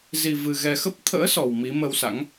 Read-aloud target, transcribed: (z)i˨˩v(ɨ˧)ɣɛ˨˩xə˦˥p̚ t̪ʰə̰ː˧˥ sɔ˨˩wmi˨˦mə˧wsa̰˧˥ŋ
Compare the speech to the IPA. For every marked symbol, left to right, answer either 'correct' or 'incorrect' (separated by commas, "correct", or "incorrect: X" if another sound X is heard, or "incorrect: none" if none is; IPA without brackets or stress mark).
correct, incorrect: ɨ˨˩